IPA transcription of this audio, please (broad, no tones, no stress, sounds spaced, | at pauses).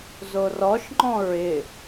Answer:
z o r ɔ ʃ ŋ͡ǃ ɔ̃ ɹ ɪ